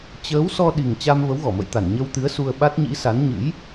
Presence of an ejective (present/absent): absent